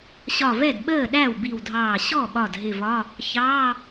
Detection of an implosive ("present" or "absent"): present